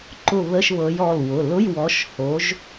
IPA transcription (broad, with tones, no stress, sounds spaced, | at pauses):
ǃ ʊ˥˨ β ə˧˥˧ ʃ β ɤ˨˦ j ɔ˩˧˩ l w ʊ˩˧˩ l ʊ˧˥˧ j w ɔ˨˦ ʃ h o˨˦ ʒ